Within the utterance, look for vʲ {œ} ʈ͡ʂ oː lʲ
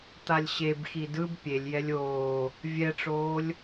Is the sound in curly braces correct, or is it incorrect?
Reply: incorrect: ɛ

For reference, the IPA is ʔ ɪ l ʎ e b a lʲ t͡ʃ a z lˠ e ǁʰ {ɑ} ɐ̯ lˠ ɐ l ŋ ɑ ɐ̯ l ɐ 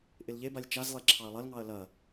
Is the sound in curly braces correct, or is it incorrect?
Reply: correct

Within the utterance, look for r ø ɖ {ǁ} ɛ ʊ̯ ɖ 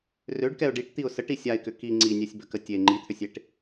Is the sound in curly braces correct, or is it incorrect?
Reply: incorrect: k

